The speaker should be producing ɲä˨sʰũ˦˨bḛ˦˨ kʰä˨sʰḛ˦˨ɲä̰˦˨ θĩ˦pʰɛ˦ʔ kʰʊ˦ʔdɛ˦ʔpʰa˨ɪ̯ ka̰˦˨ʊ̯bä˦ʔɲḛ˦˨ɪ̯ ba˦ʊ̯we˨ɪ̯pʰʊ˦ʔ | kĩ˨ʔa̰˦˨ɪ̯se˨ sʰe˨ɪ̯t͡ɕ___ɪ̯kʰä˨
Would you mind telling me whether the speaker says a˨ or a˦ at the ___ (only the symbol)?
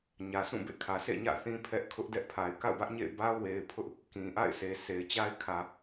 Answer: a˦